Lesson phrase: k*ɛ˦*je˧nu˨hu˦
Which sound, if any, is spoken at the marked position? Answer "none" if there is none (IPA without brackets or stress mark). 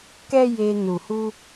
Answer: ɛ˦